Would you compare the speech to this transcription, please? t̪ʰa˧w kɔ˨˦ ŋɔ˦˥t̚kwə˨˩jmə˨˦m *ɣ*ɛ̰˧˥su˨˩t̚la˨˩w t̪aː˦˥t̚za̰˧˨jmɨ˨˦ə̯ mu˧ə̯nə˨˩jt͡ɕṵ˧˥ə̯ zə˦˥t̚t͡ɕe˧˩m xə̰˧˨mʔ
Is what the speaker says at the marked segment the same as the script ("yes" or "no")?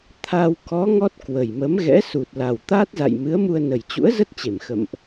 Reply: yes